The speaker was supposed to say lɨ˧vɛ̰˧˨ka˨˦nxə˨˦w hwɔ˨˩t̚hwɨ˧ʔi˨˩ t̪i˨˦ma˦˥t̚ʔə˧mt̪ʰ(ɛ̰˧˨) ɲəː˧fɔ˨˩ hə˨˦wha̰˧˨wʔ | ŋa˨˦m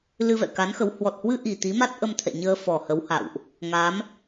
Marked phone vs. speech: correct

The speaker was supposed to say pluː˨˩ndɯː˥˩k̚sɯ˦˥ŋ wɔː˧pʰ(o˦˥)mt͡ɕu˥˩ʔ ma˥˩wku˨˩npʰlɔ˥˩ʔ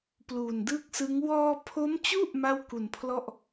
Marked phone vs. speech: correct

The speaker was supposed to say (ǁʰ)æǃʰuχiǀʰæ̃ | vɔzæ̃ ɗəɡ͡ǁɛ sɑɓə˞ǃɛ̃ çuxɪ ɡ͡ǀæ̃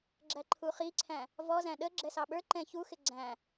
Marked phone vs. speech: incorrect: ɡ͡ǁ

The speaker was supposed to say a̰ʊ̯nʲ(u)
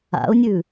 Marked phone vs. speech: incorrect: ʉ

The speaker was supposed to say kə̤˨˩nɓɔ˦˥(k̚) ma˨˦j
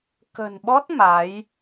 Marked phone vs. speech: incorrect: t̚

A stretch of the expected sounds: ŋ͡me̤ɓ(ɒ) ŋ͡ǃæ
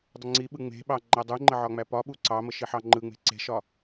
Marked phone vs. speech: incorrect: ɑ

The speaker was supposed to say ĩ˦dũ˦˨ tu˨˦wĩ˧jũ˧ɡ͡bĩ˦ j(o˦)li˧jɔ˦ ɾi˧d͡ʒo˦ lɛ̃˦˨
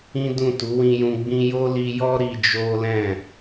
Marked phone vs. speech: correct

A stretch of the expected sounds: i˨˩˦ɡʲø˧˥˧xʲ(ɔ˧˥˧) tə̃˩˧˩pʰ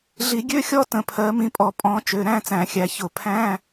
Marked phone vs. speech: correct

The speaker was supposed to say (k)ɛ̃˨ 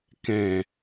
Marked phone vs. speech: correct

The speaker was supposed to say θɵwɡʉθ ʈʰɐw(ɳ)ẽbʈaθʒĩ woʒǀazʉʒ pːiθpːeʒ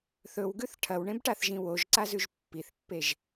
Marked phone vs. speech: correct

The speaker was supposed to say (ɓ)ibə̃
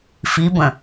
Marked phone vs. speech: incorrect: f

